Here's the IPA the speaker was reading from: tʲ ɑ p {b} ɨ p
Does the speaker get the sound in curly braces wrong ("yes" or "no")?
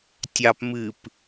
yes